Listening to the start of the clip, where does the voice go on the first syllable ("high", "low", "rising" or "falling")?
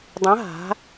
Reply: rising